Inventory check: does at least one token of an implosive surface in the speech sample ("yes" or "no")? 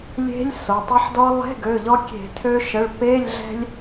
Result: no